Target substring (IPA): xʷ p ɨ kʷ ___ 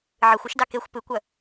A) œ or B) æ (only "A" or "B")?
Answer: A